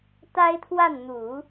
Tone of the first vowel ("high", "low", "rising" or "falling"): high